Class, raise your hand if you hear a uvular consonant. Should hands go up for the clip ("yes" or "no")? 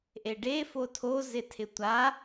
no